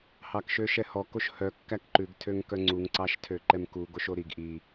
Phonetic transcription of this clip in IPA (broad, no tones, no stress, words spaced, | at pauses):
hɑkʃøʃɛhɔ koʃhœ kːækǃʉɡ tʰøŋkœŋ͡ǀuŋ ǀɑʃtʰøǃɛmku ɡoʃoɾiɡ ʔi